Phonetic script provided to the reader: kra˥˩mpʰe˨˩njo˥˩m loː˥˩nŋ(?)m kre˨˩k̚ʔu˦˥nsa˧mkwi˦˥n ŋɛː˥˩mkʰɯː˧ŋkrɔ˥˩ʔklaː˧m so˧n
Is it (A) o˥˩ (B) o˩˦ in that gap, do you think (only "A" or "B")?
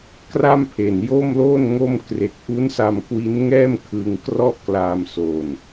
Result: A